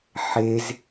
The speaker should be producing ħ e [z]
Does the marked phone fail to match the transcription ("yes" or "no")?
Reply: no